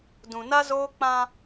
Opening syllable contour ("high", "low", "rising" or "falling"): low